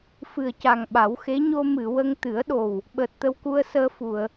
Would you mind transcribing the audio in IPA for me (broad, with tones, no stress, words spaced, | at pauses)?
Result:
fɨ˨˩ə̯ca˨˩ŋɓa˨˩˦wxe˧˥ ɲo˧mɨ˨˩˨wə˧ŋ t̪ɨ˨˩˦ə̯ɗo˨˩w | ɓəː˨˩t̚t̪ə˧wku˧ə̯ səː˧fu˨˩˨ə̯